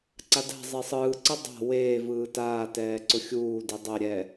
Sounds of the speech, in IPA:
ǀ a d a̤ zˤ e sˤ ɯː ǀ ɯ dˤ a̤ w eː v ɯː t aː t ɛː ǀ ʊ xʲ uː d i dˤ ɛ ɾʲ ɛ

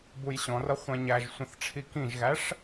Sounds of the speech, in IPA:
b u j ɕ ɔ̃ r ʌ χʷ ɛ̃ ɲ æ ʒ sʷ ə̃ θ ʈ͡ʂʰ i k ĩ ʒ ɣ æ ʂ

